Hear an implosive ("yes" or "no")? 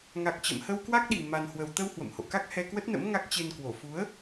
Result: yes